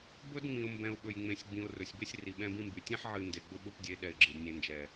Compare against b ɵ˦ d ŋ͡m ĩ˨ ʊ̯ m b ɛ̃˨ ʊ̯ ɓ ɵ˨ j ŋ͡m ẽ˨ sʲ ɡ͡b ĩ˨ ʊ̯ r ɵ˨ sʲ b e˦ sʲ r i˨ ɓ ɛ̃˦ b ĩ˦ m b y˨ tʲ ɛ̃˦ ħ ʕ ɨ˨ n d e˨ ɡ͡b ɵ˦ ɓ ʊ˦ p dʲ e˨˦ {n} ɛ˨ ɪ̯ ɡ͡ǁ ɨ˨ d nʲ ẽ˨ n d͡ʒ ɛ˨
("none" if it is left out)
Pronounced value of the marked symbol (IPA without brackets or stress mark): ɗ